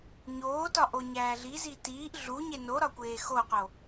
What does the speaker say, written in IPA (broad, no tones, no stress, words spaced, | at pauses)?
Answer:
ɲoːtɒ ʔoɲæːɮizi tiːʔ ɮuɲe noɾɒ kʷeːxoqo